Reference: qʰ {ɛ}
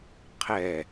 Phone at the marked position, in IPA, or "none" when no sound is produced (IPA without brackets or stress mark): ɛ